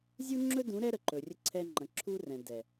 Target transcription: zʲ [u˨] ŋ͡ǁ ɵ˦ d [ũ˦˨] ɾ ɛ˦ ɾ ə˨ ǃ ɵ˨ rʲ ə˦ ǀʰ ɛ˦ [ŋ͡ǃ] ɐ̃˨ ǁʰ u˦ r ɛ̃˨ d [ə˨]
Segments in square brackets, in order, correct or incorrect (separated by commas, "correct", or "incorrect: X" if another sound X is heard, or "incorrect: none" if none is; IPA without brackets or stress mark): incorrect: u˦, incorrect: ũ˨˦, correct, incorrect: ɛ˨